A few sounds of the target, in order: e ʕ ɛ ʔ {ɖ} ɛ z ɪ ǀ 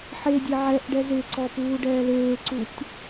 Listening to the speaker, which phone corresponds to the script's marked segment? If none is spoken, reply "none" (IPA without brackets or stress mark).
ɖ